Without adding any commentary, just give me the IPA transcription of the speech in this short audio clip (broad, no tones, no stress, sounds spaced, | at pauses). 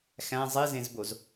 x æ̃ zˤ i z ẽ z b o z